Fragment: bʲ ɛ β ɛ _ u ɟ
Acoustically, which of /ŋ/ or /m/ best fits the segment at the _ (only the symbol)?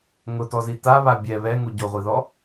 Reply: ŋ